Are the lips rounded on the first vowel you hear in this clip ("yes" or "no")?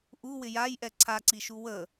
yes